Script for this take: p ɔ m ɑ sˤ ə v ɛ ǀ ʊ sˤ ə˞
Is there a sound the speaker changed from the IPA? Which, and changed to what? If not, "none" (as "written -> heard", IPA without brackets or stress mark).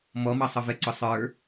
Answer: p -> m